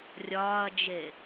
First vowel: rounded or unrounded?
rounded